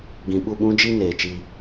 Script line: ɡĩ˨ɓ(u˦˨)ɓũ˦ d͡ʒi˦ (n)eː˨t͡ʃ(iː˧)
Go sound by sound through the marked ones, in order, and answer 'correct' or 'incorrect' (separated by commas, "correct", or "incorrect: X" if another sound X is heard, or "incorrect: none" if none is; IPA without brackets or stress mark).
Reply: correct, correct, incorrect: i˧